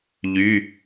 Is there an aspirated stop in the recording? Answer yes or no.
no